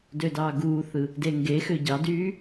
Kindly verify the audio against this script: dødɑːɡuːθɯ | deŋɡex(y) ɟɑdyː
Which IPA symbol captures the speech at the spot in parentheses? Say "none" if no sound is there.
ø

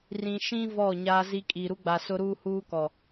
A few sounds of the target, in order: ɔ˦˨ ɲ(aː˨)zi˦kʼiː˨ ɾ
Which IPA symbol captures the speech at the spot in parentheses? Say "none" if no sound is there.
aː˦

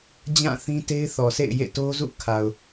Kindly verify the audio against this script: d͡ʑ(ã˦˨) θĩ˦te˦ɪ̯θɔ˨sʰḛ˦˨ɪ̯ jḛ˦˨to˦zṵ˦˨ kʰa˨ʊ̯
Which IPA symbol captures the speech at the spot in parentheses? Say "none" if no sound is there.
ã˦˨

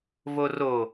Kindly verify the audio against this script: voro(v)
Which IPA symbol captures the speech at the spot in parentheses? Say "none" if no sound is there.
none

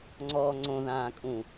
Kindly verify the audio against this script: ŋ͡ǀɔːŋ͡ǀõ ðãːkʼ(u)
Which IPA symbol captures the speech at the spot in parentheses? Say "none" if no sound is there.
ũ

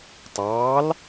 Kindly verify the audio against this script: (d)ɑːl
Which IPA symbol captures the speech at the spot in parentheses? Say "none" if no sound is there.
tˤ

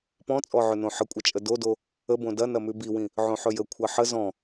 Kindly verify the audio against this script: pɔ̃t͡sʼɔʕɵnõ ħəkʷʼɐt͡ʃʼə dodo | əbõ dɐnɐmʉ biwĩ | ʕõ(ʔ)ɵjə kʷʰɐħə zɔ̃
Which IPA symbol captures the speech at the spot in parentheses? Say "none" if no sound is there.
ħ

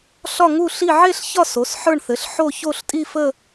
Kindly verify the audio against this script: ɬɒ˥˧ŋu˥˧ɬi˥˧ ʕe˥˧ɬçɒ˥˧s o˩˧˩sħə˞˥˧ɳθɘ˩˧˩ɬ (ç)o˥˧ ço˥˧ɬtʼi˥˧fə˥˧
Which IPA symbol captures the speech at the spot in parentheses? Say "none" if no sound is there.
ħ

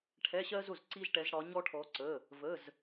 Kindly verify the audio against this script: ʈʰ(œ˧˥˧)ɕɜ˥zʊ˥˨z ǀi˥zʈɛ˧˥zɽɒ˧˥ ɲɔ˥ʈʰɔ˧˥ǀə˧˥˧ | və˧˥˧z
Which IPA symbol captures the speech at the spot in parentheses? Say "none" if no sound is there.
ɛ˧˥˧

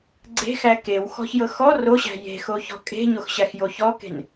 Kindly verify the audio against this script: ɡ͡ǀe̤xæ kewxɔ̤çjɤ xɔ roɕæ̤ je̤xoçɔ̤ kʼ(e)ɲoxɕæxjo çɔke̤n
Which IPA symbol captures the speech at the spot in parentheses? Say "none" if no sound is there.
e̤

